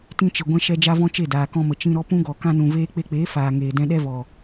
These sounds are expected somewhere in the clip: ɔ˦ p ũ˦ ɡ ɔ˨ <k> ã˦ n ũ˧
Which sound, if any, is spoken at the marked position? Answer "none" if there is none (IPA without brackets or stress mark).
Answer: k